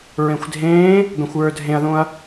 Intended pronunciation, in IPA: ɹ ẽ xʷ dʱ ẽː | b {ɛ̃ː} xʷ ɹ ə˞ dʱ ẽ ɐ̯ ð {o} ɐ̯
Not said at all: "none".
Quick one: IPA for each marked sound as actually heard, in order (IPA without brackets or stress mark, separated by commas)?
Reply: ɛ̃, õ